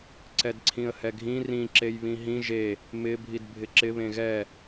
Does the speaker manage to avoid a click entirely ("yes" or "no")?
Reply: no